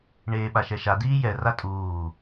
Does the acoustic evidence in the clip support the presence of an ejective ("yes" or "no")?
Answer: yes